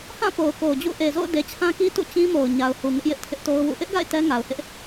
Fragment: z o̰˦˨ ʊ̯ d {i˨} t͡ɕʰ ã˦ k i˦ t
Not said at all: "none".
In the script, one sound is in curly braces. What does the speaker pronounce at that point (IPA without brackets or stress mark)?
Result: e˨